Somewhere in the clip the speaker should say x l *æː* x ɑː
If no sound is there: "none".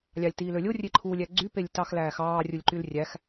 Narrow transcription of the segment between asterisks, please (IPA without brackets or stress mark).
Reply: æː